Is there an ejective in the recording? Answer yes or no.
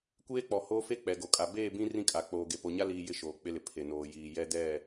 yes